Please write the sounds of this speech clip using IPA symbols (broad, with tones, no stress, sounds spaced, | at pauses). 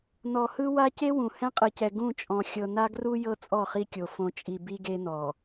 n ɔ˨ h ɯ˦ w a˦ c e˦ w ũ˨ h ɛ̃˦ qʼ ɯ˨ c ɛ˨ ɡ ũ˦˨ t͡ʃʼ ɔ̃˨ xʲ ɤ˨ n a˦ ɡ r u˦ j ɤ˦ t͡sʼ ɔ˦˨ χ i˦ kʲ o˨ f õ˨ t͡ʃʼ i˨ b i˦ ɡ e˦ n ɔ˨